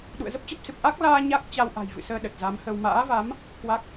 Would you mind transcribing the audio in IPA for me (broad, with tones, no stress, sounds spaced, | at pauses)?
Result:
ɗ ṵ˧˨ ə̯ z ə˦˥ p̚ t͡ɕ ə˦˥ p̚ s ɨ˨˩ p̚ ʔ a˦˥ k̚ l aː˧ ɲ a˦˥ k̚ t͡ɕ a˧ w ʔ a̤˨˩ j v ɨ̰˧˨ s əː˧ ɗ ə˨˩ t̚ z a˨˦ m h ə˧ w m a̰ː˧˥ v a˨˦ m | k w a˦˥ k̚